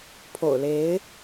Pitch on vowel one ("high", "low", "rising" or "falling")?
low